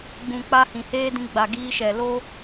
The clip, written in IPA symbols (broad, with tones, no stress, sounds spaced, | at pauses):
ɡ͡b ũ˨ k͡p a˧ h ĩ˨ h eː˦ d ĩ˧ ɡ͡b a˨ ɡ iː˧ ʃ ɛ˨ l o˦